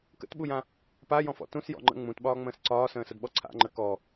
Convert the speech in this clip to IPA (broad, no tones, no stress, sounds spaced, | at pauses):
k ə̰ t ɓ u j ã | p a j ɔ̃ f ɔ̰ t ũ s j ɔ̰ ŋ͡ǃ ə̰ ŋ͡m ũ t ɓ ɒː ŋ͡m ə̃ː s ǀ ɒː s ə̃ː s ə d ɓ ɔ ǀʰ a̰ ŋ͡ǃ ə k ɔ